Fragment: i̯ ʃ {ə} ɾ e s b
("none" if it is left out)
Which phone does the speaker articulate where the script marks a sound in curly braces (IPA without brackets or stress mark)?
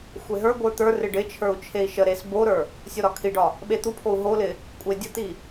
ə